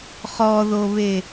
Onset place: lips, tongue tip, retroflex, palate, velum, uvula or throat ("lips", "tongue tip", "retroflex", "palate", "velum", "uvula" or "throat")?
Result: uvula